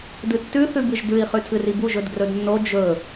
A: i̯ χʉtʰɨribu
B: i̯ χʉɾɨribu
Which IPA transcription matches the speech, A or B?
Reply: A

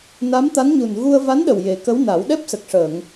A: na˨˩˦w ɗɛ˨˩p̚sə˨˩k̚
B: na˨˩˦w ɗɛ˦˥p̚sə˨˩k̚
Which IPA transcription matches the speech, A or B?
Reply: B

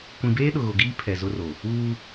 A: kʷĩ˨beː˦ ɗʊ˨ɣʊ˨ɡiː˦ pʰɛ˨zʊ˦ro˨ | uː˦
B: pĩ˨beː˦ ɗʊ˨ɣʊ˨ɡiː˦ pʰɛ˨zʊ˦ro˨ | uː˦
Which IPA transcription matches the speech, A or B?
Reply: A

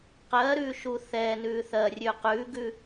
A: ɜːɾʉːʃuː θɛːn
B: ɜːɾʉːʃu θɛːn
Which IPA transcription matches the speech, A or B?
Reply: A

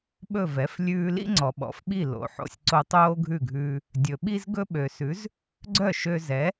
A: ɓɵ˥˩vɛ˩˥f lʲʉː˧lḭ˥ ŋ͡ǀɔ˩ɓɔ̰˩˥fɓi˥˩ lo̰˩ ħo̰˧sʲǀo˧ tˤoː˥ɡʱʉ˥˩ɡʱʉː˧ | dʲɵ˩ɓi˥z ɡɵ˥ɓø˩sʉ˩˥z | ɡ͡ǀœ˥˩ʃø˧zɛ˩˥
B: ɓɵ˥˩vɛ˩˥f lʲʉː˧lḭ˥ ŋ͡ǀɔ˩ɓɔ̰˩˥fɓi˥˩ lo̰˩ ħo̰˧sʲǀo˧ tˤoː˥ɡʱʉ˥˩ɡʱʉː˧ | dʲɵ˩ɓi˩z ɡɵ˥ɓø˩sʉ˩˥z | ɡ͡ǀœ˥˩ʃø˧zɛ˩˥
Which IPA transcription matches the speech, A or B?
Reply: A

